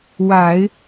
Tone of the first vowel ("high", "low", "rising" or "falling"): low